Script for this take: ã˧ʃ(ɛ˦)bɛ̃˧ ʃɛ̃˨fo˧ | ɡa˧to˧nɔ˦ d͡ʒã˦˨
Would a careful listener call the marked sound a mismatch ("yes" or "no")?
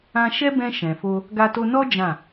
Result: no